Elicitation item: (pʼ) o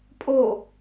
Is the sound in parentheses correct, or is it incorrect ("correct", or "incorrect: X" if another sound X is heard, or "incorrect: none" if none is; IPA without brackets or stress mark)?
correct